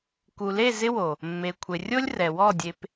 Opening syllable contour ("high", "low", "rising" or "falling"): low